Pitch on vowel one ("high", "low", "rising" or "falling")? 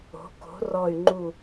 rising